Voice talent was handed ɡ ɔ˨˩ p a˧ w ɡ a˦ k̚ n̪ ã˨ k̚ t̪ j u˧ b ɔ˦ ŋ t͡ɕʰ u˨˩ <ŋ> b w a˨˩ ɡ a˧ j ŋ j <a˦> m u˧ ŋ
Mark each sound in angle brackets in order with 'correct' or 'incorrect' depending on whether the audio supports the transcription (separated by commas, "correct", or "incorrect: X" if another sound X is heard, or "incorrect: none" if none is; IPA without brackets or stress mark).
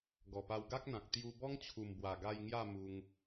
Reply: incorrect: m, incorrect: a˥˧